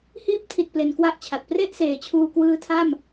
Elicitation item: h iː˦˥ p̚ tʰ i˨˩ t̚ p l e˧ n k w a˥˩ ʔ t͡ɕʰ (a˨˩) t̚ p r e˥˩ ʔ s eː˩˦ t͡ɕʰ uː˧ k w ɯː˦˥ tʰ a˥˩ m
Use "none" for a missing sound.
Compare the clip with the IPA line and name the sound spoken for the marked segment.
a˨˩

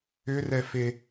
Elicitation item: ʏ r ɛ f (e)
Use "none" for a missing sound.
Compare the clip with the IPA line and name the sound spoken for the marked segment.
e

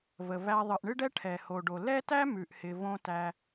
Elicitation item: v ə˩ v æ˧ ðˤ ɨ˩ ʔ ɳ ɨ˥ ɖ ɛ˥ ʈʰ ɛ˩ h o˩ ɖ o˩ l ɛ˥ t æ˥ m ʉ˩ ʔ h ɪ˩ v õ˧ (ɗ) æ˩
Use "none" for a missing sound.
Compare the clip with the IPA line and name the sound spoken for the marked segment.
t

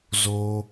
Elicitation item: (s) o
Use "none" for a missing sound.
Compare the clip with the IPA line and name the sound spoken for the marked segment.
z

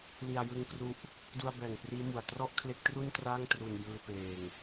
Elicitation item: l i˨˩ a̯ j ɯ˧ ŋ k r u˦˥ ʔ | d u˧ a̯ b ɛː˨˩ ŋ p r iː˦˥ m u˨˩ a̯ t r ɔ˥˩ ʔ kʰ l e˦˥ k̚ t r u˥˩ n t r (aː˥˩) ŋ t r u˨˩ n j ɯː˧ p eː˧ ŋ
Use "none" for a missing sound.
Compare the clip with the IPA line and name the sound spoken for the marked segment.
aː˥˩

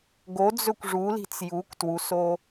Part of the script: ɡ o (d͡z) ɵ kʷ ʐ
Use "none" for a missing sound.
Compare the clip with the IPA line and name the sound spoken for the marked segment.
d͡z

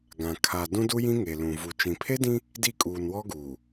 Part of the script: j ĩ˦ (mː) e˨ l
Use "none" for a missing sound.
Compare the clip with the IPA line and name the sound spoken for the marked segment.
ŋ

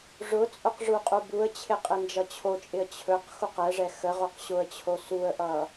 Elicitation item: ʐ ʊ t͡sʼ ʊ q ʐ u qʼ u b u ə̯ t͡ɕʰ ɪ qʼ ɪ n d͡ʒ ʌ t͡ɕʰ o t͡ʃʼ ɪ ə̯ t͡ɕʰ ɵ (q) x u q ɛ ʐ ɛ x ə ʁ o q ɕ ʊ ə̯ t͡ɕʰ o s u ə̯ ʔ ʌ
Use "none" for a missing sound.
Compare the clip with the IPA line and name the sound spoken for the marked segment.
q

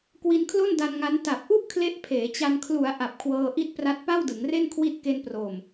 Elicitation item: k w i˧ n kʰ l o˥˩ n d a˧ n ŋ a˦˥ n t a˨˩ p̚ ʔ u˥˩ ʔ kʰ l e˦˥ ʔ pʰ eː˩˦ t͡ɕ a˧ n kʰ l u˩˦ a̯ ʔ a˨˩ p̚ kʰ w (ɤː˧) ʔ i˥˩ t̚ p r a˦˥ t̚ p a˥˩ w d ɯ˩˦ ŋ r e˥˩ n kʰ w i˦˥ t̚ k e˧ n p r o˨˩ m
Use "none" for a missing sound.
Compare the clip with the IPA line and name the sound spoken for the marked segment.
ɤː˧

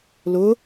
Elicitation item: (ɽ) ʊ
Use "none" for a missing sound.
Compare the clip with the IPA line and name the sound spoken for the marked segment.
l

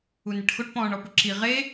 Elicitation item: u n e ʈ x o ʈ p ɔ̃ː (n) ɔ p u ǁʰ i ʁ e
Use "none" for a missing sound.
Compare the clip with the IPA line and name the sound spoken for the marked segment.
ɳ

